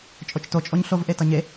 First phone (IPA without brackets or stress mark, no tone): t͡ʃʼ